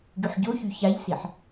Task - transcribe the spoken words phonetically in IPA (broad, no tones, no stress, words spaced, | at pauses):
ɡyħɟoçy çaʎsiħ